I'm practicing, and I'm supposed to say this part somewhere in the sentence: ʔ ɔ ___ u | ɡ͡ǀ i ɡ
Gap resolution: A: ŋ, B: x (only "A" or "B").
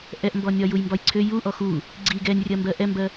B